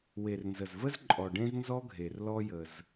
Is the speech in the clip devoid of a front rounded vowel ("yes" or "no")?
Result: yes